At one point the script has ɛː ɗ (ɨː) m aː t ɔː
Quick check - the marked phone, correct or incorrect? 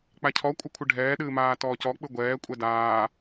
correct